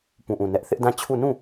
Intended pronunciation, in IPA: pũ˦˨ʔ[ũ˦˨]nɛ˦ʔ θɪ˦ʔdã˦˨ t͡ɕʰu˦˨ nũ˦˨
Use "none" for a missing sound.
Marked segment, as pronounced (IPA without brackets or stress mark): ũ˦˨